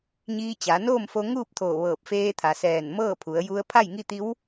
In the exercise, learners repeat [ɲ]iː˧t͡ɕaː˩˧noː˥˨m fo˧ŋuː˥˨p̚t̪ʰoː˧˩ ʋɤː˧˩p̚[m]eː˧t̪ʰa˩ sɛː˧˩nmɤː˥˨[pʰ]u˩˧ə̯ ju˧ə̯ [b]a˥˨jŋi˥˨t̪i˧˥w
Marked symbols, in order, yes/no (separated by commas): yes, no, yes, no